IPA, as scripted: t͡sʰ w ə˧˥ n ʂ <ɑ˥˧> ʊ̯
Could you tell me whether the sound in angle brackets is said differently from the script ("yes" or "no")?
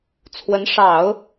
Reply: yes